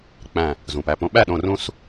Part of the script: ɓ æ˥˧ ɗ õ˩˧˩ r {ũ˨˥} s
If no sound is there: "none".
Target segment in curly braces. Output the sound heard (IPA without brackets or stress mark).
ũ˧